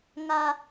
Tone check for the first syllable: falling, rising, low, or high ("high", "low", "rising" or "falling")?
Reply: high